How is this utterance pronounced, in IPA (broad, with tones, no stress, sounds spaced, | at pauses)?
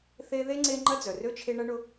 θ e˦ ð e˥ ŋ͡ǀ e˦ ŋ͡ǃ ɐ˥ d͡z œ˩ r ø˥ t͡ʃʰ e˦ ɳ ɐ˥ ɳ ʊ˦